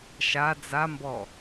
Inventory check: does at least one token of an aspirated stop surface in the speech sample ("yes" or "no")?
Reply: no